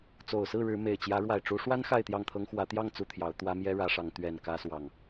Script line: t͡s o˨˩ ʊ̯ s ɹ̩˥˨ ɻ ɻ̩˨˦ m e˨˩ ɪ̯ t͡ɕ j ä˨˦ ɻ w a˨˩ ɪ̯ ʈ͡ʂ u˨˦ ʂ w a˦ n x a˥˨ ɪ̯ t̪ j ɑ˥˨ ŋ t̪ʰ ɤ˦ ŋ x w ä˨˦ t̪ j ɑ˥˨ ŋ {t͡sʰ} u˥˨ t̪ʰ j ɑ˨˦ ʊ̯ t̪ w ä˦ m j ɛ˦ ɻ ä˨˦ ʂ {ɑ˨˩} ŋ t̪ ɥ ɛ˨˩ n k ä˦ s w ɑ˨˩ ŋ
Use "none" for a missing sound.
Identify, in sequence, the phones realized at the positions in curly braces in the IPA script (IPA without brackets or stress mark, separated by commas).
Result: t͡s, ɑ˨˦